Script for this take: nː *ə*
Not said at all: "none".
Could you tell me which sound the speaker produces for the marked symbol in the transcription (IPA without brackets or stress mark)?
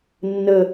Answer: ə